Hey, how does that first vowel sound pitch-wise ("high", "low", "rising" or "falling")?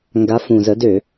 rising